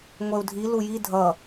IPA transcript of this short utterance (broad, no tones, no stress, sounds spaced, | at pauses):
ŋʷ ɛ u̯ dʱ i l u j i dʱ ʌ